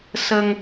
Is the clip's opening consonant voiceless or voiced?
voiceless